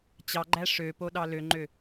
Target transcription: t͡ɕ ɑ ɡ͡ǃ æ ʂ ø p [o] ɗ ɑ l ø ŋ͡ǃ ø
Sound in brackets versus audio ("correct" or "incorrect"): correct